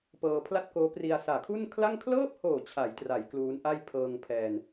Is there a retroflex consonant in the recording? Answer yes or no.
no